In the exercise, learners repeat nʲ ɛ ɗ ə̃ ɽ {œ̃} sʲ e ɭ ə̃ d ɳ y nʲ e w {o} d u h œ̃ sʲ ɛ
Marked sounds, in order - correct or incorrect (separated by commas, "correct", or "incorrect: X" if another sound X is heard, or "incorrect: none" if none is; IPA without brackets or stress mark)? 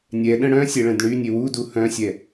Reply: correct, incorrect: u